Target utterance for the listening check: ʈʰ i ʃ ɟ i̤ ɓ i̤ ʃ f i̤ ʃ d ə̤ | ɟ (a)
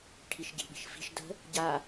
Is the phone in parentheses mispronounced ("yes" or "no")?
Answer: no